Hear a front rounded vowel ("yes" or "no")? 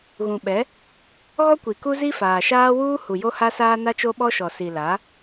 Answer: no